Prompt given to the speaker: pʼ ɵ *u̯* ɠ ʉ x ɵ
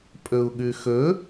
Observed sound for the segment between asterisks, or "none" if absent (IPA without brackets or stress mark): u̯